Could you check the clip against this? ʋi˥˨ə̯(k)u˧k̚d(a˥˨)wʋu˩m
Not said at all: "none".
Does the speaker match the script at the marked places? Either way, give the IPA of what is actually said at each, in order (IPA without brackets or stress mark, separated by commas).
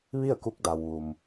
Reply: k, a˩